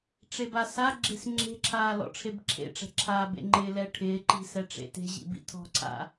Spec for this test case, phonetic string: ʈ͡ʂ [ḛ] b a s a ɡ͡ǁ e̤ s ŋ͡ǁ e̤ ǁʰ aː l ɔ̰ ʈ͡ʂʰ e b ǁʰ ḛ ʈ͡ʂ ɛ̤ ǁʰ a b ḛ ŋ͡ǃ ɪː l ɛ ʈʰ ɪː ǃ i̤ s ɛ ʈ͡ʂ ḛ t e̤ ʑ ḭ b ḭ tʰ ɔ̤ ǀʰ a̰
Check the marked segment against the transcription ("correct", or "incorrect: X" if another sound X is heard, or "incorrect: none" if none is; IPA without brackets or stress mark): incorrect: e